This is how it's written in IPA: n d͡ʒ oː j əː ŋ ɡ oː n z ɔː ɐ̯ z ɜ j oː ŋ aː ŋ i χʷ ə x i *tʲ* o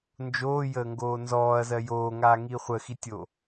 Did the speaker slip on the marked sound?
no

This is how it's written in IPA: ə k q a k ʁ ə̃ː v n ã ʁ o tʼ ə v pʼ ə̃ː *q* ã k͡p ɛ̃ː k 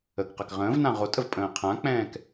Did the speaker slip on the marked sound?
yes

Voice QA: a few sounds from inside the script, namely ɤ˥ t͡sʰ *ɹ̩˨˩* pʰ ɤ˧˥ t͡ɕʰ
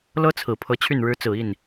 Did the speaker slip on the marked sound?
no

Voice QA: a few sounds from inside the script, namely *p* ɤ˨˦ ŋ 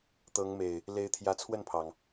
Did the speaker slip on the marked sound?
yes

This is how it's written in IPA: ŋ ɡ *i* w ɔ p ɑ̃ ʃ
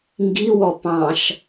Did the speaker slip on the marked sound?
no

